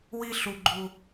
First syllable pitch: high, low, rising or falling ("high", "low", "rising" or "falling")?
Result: high